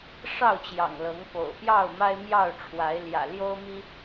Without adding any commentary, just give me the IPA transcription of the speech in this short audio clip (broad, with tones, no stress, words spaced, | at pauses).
ʂɑ˥˨ʊ̯t͡ɕjɑ̰˨˩ŋlɤ˨˦ŋ po̰˨˩ʊ̯pjɑ˥˨ʊ̯ ma˦ɪ̯mjɑ˥˨ʊ̯ʈ͡ʂʰwa˨˦ɪ̯ ljä̰˨˩ljo˦ʊ̯mi˦